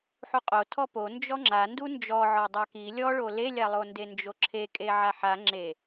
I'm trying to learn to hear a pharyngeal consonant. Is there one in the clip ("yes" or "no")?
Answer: yes